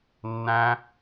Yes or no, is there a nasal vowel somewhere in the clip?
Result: yes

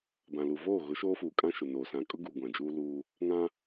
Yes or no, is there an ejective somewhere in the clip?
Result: yes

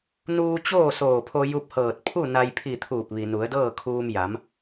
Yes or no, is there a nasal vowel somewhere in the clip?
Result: no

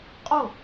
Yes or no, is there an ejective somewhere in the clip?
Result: yes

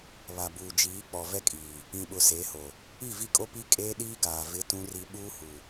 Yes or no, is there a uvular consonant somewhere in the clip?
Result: no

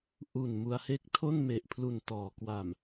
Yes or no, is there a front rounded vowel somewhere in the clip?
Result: no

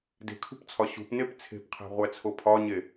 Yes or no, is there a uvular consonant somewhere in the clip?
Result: yes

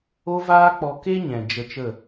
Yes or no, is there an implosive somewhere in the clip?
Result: no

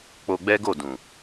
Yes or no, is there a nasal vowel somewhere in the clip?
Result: yes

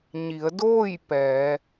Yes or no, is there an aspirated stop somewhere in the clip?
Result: no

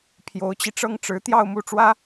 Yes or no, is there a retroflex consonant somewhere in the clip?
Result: yes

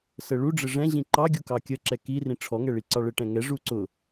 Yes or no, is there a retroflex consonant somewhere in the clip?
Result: yes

